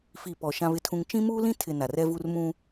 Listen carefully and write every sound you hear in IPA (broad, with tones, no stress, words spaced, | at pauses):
fi˨ pɔ˨ ʃã˦βɪ˦tʰũ˦ŋ t͡ʃĩ˦muː˦lĩ˦ tʰɪ˨ na˨rɛ˦vu˦r mũ˦